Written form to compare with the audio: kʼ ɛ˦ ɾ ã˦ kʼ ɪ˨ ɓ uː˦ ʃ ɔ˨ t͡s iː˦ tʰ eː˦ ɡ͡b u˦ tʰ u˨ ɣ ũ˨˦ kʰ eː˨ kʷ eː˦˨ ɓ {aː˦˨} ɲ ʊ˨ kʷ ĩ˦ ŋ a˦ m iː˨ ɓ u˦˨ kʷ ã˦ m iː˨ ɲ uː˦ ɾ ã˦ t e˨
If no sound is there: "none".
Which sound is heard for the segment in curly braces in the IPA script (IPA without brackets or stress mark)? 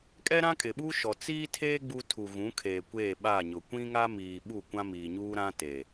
aː˦˨